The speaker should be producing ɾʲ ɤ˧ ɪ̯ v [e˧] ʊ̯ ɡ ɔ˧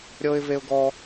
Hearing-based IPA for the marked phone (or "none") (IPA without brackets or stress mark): e˧